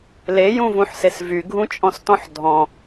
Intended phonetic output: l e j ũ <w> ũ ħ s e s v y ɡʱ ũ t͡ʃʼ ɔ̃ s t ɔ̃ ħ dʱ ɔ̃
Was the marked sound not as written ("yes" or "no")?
yes